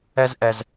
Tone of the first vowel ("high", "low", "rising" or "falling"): high